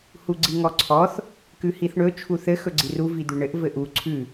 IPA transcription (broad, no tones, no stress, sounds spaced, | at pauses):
h u ɡ͡ǀ i ŋ ɔ ǀʰ ɔ θ | k ʉ h i θ ɳ ɵ t͡ʃʰ u θ ɘ x ɵ ɡ͡ǀ i r u v i d̪ ʉ ɳ ɘ ʔ v ɘ ʔ u ǀʰ ʉ